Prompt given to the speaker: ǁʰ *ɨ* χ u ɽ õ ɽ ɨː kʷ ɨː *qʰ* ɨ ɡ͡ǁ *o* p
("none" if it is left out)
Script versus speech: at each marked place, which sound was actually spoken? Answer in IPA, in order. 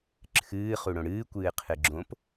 ɨː, qʰ, õ

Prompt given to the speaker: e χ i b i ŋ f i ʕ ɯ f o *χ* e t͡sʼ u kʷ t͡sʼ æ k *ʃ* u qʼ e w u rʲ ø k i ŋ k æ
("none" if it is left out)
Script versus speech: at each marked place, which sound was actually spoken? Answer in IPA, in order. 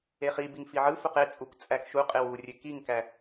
q, ʃ

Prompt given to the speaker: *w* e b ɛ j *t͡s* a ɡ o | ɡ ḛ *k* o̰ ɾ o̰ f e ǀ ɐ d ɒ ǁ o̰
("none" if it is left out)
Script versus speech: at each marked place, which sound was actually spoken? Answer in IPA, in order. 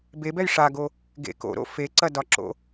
b, ʂ, k

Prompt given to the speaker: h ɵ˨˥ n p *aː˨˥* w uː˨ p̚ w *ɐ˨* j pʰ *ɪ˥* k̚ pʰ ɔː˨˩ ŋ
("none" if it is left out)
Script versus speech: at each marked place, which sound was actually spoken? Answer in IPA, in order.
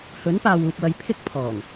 aː˨, ɐ˨, ɪ˥

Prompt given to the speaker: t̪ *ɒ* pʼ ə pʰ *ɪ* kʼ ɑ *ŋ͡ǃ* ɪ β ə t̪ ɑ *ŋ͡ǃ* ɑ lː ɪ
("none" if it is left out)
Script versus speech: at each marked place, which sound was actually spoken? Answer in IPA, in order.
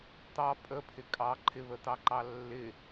ɑ, ɪ, ǃʰ, ǃ

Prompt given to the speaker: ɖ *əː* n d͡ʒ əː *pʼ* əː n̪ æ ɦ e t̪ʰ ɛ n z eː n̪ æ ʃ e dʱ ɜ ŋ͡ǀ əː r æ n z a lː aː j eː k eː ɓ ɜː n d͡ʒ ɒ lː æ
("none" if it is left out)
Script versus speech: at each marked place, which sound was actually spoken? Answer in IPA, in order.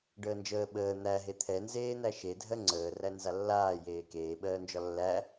əː, ɓ

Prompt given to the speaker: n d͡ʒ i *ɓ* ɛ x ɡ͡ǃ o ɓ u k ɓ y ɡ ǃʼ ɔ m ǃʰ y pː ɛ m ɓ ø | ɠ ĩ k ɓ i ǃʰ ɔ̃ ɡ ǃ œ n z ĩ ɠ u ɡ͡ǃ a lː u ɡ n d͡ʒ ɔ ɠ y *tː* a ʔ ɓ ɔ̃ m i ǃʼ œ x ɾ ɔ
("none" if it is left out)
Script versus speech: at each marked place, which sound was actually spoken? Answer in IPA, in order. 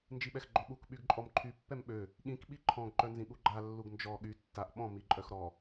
ɓ, tː

